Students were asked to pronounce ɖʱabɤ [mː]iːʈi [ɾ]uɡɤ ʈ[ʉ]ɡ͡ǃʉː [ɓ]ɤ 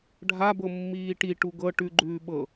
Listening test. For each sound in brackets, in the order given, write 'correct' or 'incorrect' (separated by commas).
correct, incorrect, correct, correct